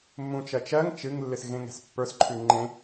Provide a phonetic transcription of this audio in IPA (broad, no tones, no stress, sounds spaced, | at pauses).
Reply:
mː ũ t͡ʃ ɜ t͡ʃ ɜ ŋ t͡ʃ ɨ ŋ lː ɨ s ɣ ẽ ŋ ɛ̤ s pː ə˞ s ǃʰ ʉ ŋ͡ǃ ẽ